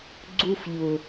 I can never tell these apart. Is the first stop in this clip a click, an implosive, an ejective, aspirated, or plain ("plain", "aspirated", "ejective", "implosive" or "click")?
click